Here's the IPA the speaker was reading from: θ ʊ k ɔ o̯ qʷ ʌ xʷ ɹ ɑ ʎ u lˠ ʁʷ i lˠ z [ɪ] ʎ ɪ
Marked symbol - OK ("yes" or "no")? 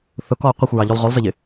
no